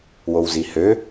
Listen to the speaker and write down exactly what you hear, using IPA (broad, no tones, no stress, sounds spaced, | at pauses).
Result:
w o w z i h ø